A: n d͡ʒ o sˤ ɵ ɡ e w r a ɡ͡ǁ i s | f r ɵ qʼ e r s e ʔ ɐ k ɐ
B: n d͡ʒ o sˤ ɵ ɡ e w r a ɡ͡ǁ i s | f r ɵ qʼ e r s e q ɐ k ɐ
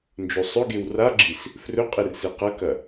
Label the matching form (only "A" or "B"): B